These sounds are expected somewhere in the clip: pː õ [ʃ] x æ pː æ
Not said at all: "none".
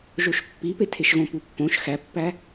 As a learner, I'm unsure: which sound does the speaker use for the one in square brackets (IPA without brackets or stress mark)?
ʃ